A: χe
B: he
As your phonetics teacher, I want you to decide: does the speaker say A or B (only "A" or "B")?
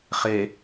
A